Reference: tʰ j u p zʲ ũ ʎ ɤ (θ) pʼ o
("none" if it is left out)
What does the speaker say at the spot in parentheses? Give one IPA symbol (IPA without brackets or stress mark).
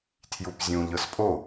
s